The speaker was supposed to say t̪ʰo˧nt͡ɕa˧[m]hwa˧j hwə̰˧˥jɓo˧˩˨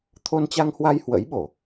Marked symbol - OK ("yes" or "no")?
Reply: no